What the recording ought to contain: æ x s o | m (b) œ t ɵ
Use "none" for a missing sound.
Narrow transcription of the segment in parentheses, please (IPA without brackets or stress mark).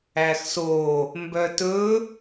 b